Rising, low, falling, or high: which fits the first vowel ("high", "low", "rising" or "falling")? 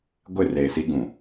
falling